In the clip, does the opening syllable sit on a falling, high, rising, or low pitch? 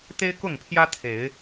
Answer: high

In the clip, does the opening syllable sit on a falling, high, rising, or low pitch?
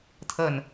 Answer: falling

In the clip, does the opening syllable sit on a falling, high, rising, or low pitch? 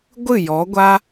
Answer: falling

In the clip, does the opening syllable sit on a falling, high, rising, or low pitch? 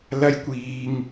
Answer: high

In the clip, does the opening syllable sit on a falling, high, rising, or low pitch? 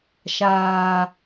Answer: low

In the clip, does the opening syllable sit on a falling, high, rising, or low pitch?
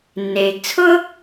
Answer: low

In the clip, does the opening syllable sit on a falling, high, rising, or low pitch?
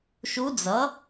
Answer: rising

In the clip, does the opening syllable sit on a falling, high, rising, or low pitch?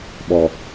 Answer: low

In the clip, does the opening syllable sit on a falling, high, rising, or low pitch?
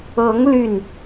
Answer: rising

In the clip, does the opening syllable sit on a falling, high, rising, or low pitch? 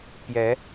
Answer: rising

